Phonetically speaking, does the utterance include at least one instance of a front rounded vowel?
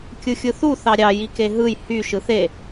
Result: yes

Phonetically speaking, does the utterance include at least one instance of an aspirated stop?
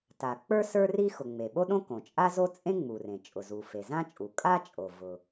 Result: no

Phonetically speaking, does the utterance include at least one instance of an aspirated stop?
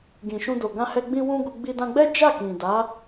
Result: no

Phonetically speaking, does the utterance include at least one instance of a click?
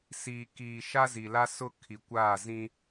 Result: no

